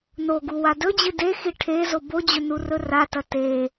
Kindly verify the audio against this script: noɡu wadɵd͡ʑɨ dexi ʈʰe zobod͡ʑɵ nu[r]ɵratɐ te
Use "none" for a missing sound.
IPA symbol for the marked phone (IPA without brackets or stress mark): r